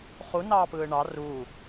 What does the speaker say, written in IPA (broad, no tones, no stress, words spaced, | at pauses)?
χunɑːpɯː ɳɑ ruː